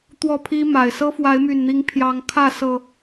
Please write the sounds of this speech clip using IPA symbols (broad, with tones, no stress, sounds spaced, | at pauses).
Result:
t̪ w ɔ˥˨ pʰ i˦ m a˨˩ ɪ̯ s ɤ˦ f w a˨˦ ɪ̯ m y˨˩ n n̪ i˨˦ ŋ pʰ j ɑ˨˦ ŋ kʰ ä˥˨ s ɤ˨˩